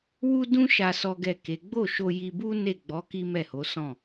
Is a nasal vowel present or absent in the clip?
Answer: present